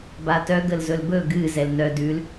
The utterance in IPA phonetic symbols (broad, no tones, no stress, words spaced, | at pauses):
batœ ɡəlzɵlbɵ ɡɨ zɛlnœ dʉl